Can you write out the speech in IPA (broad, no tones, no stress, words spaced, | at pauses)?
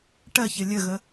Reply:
ʈɜçɘ lʲəɣə